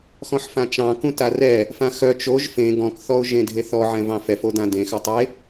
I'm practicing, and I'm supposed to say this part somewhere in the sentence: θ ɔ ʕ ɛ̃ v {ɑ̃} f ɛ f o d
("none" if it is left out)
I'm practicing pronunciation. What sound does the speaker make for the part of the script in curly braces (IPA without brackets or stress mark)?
ɑ̃